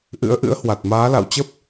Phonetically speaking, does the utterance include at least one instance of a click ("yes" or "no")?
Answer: no